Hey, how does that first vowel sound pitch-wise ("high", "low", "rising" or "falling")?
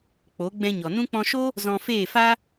rising